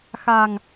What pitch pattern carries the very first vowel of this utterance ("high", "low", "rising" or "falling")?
low